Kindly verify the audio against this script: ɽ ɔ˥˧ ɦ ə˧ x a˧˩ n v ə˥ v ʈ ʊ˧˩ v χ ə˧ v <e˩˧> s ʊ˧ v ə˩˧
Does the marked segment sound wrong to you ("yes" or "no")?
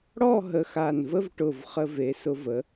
no